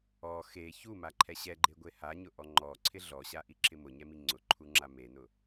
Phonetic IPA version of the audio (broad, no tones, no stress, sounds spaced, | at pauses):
ɔ x e ç u m a ǃʰ ɛ ɕ ɛ ɡ͡ǃ e ɡʷ e h a ɲ ʊ ʔ ɔ ŋ͡ǃ ɔ ǀʰ ɪ ɮ ɔ ɕ a ʔ i ǁʰ ɪ m ʊ ɲ ɛ m i ŋ͡ǀ ʊ ǃʰ u ŋ͡ǁ a m e n ʊ